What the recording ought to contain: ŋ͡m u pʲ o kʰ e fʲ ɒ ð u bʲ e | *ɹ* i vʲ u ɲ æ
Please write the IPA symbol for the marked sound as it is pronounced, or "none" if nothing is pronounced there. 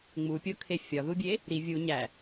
ɾ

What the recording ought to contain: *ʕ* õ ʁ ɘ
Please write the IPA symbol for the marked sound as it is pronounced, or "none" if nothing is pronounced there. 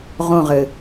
ʁ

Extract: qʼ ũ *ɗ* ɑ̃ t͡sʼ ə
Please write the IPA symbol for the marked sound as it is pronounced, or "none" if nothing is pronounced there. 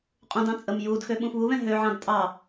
d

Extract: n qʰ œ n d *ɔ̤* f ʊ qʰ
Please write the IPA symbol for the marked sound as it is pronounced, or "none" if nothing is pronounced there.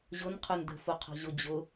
ə̤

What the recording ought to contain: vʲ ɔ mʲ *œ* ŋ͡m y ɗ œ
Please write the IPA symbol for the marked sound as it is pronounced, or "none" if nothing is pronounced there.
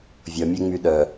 œ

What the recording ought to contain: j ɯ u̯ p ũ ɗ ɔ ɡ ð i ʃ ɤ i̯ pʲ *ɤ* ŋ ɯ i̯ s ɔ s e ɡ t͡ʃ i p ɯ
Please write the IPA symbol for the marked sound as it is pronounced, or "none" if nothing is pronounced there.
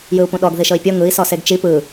ɤ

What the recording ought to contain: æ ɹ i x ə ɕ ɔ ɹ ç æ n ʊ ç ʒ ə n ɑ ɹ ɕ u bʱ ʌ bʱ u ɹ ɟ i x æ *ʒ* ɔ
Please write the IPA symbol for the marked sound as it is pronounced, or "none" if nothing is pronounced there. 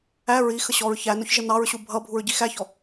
ç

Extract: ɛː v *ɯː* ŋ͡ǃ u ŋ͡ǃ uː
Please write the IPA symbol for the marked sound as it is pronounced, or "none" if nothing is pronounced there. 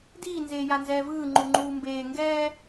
ɯː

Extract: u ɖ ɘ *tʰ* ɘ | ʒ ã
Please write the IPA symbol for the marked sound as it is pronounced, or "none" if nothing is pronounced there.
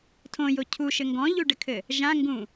kʰ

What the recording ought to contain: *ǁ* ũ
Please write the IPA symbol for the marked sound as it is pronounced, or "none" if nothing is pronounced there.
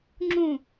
ŋ͡ǁ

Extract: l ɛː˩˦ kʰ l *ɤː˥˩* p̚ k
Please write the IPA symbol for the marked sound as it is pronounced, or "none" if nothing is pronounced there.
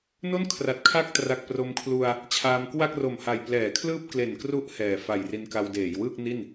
ɯː˥˩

